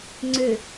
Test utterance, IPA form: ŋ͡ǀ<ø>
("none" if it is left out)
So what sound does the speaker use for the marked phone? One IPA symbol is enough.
ø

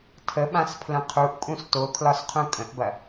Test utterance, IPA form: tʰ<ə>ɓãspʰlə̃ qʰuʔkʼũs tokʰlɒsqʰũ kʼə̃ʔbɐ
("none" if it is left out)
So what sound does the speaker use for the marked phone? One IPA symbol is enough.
ə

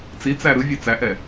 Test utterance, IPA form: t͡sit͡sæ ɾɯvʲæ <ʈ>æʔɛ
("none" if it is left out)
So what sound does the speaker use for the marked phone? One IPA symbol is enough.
t͡s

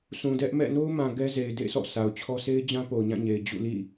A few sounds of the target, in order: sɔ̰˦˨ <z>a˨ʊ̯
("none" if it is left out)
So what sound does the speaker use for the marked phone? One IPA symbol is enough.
s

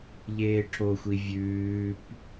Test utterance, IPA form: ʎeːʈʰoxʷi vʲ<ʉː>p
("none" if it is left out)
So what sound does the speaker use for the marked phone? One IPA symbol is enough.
ʉː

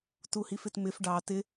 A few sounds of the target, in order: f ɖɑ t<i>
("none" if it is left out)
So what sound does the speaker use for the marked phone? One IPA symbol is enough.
ɪ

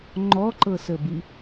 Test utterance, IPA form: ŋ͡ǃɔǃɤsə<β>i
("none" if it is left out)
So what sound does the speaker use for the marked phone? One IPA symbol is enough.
b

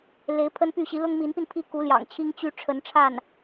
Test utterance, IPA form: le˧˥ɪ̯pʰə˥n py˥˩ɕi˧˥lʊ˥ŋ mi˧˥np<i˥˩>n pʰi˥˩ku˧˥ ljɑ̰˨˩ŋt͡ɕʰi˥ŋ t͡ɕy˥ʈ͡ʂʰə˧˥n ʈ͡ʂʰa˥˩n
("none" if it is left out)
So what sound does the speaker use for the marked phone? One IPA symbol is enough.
i˧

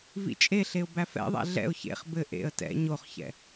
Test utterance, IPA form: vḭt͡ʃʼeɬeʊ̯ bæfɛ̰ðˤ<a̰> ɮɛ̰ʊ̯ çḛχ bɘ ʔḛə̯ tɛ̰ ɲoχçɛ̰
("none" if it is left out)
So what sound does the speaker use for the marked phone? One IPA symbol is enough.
æ̰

